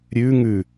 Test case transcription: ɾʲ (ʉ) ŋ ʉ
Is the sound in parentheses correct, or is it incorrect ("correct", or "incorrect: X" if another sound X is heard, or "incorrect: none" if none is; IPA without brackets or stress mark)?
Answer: correct